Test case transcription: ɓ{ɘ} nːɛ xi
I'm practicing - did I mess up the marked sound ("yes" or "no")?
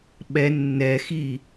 yes